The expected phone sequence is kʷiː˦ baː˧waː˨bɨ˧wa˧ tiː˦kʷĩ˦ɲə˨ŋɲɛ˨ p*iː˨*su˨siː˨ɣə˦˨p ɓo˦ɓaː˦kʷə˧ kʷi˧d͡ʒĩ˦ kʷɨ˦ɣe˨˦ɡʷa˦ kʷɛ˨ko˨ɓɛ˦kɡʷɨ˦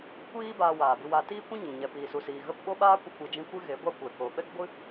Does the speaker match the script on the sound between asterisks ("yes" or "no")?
yes